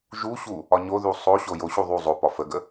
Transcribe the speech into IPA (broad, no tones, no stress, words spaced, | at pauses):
ʒuɕu | ɒɲoðu sˤoɕo joɕu ðˤu zˤopɒ fəɡə